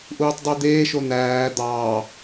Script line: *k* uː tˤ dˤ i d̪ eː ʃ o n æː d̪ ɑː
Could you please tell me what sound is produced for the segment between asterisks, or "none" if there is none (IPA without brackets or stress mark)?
ʔ